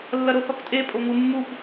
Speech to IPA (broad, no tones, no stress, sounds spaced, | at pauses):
lː ɐ ɾ o θ ɔ k tʼ e pʼ o ŋ u mː u p